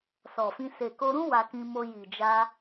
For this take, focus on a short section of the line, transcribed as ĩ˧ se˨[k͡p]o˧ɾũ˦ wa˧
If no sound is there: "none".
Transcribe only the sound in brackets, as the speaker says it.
k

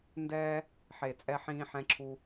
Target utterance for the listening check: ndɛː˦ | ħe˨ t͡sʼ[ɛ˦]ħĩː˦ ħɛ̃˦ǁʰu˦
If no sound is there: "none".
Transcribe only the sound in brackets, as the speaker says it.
ɛ˦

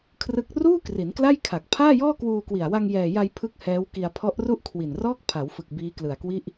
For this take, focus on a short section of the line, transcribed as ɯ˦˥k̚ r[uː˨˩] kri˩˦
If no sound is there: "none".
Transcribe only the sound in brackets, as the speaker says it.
uː˥˩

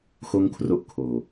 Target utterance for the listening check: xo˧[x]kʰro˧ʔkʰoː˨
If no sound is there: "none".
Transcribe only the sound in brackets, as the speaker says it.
ŋ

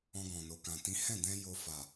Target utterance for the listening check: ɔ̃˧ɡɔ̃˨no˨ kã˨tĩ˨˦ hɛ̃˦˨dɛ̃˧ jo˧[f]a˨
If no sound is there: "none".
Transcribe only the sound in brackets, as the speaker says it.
f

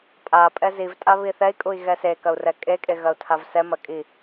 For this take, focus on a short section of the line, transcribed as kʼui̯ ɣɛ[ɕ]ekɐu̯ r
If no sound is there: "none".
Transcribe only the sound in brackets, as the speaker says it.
s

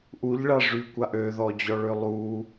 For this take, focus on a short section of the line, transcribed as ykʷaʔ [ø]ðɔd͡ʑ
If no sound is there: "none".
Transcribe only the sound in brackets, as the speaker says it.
ø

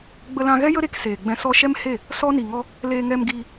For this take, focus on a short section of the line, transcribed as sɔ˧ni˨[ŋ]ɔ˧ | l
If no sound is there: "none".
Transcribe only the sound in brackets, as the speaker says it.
ŋ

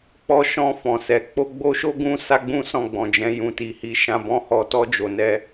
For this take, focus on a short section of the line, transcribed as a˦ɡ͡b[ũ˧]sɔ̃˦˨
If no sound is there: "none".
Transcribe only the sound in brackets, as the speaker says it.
ũ˦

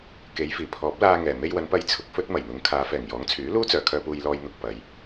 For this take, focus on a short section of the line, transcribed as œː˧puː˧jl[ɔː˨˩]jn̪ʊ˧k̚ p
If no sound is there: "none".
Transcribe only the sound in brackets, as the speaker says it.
ɔː˧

